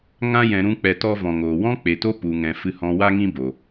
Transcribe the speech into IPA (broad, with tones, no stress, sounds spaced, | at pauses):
ŋ ã˧ j ɛ̃˨ ɾ ũ˧ k͡p ɛ˧ t ɔ˦ v ɔ̃˨ ŋ oː˨ w ɔ̃˦ k͡p e˨ t o˦ p u˨ ŋ ɛ̃˨ f ɨ˧ h ɔ̃˧ w a˦ ŋ ĩ˦ b o˨